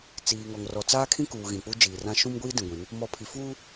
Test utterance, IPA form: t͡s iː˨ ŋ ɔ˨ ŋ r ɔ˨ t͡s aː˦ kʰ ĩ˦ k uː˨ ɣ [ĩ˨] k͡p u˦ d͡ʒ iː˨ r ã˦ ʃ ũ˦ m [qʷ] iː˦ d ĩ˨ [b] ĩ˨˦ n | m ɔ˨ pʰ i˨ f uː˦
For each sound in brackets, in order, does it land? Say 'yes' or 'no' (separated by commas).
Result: yes, no, no